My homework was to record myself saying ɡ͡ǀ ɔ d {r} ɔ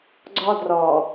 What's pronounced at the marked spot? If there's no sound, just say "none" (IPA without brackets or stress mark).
r